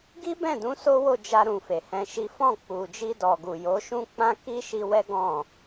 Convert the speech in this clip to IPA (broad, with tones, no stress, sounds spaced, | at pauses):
ɡ i˦ b ɛ̃˦˨ d ũ˨˦ s o˦ w o˦˨ d͡ʒ a˧ ɾ ũ˨ f e˨ h ɛ̃˧ ʃ i˦ f ɔ̃˦˨ k͡p u˨ d͡ʒ i˧ d ɔ˨ ɡ u˨ j o˨˦ ʃ ũ˦ k͡p ã˦ k i˦ ʃ i˧ w ɛ˦ ɡ ɔ̃˦˨